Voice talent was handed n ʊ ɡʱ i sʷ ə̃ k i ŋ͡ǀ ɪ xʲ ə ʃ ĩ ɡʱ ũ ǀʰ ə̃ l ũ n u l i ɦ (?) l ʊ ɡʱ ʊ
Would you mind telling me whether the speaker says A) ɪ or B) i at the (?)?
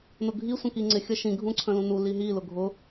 B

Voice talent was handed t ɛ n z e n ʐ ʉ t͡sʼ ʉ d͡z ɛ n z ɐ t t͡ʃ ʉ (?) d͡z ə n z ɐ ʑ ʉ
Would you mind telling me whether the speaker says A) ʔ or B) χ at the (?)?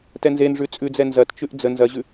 A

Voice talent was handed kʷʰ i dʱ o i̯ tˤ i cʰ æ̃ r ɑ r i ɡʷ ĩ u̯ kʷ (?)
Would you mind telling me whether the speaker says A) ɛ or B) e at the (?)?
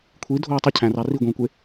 B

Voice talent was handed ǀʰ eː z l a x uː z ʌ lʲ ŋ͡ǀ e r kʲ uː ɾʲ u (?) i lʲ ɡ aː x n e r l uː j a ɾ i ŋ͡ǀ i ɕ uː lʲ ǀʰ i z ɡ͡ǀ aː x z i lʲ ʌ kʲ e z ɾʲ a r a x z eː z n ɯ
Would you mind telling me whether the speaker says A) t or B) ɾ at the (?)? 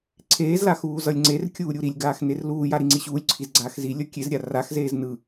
B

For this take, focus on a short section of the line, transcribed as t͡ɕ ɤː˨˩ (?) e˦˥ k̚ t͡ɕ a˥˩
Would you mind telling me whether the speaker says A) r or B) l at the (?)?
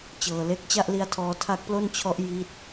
B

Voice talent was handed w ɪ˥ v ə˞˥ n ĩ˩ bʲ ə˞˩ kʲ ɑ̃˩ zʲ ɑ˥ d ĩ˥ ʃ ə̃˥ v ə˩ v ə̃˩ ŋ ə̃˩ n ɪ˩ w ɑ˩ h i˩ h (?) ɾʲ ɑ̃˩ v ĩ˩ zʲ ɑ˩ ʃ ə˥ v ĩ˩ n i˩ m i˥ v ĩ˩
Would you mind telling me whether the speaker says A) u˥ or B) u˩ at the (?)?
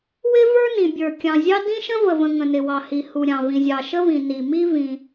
B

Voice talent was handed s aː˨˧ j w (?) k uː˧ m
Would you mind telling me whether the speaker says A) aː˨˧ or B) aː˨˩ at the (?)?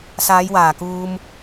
B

